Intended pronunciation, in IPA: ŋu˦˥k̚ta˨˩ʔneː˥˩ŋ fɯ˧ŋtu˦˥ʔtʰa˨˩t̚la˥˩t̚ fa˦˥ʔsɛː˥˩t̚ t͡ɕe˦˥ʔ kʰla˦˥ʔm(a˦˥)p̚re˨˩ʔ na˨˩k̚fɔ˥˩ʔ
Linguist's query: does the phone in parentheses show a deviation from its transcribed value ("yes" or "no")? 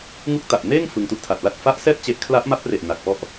no